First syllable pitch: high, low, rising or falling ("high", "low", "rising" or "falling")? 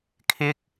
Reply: high